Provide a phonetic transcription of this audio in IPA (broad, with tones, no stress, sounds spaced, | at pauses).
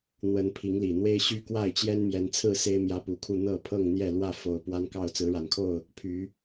n̪ w ə˨˦ n pʰ i˨˦ ŋ l i˨˩ n̪ w e˦ ɪ̯ ɕ y˦ k w a˥˨ ɪ̯ t͡ɕ j ɛ˦ n m j ɛ˨˦ n t͡sʰ ɹ̩˥˨ s e˦ ɪ̯ m j ä˦ p u˨˦ kʰ u˥˨ n̪ ɤ˥˨ pʰ ɤ˥˨ ŋ n̪ j ɛ˥˨ l w ä˥˨ f o˨˩ ʊ̯ p w a˦ n k ɑ˥˨ ʊ̯ t͡s ɹ̩˨˦ ɻ a˨˩ n kʰ o˥˨ ʊ̯ | pʰ y˨˦